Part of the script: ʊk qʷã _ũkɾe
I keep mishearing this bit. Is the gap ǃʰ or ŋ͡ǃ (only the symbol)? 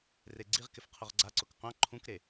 ǃʰ